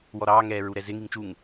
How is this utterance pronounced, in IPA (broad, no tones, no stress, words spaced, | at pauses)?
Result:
wɔɾɑː ŋɛːɹuɾɛzɪ ŋiŋt͡ʃuŋ